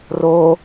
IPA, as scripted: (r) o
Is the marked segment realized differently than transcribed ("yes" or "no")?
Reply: no